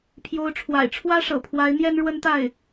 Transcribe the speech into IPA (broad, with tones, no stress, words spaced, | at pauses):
pʰjo˧˥ʊ̯ʈ͡ʂʰwa̰˨˩ɪ̯ ʈ͡ʂʰwä˥ʂɤ̰˨˩pʰwa˧˥ɪ̯ n̪jɛ˥n ɻwə˥nt̪a˥˩ɪ̯